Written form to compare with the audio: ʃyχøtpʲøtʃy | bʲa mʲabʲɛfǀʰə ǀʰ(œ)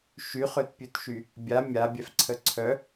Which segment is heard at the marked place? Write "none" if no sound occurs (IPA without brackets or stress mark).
œ